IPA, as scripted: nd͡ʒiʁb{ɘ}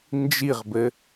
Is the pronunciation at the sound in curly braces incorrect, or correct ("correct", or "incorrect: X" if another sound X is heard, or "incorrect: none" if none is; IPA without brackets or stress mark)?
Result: correct